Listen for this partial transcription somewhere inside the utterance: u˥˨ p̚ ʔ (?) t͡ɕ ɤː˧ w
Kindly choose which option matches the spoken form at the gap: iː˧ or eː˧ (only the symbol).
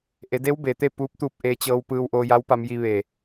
eː˧